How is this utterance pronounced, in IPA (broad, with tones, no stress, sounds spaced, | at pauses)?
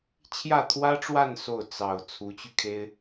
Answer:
t͡ɕʰ j ä˥˩ t̪ʰ w ä˥ ʈ͡ʂ w a˥˧ n s o˥˩ ʊ̯ t͡s ɑ˨˩ ʊ̯ t͡sʰ u˧˥ t͡ɕ y˧ kʰ e˥ ɪ̯